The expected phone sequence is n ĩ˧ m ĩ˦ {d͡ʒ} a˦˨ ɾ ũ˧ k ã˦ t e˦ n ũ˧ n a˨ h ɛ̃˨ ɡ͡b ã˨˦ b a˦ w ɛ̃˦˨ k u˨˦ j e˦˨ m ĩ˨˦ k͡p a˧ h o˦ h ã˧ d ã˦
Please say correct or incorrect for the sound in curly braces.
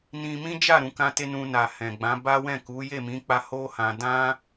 correct